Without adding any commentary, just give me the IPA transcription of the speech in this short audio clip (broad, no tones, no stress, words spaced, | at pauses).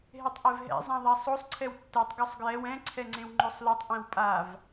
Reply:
ɦetˤʔɛvɦɛ̰ zˤãðˤasˤosˤ ǀʰɛwtːɛtˤ ɡosˤɡjɛw ɛ̃ ǀʰɛŋ͡ǀẽwŋ͡ǃosˤlotˤ ʔɛ̃wpʼav